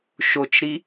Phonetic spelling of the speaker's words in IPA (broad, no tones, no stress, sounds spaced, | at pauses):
ʃ o t͡ʃ ɾ i